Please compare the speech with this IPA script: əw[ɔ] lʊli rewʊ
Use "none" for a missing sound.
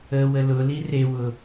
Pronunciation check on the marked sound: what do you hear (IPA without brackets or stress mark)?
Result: ə